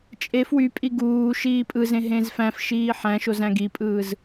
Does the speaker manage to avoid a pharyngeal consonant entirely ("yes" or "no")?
no